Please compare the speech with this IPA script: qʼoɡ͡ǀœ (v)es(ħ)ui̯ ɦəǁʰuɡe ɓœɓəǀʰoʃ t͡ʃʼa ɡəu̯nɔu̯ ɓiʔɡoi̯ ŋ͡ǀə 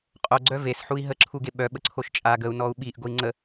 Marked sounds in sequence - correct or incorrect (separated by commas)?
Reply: correct, correct